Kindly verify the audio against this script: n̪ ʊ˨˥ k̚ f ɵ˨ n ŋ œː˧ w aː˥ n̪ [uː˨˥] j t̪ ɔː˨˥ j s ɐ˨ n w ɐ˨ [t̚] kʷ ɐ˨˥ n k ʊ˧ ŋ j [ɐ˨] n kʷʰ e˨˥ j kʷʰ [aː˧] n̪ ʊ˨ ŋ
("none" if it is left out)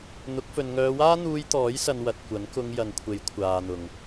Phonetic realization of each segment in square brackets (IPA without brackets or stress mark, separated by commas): uː˧, t̚, ɐ˨, aː˨